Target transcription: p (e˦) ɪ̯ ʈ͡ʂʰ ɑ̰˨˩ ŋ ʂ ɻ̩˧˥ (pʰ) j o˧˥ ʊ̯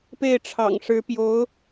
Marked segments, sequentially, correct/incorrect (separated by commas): incorrect, incorrect